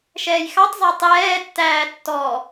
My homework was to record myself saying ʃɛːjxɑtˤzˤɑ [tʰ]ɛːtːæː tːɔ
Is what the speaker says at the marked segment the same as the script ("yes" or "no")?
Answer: no